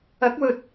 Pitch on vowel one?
rising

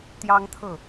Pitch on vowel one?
high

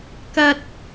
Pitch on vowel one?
high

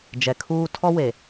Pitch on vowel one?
low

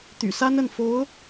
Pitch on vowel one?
low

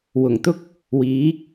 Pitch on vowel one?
low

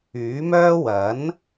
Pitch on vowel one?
rising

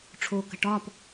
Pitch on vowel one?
low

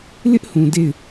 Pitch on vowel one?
high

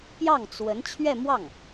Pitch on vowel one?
falling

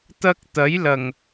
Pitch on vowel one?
high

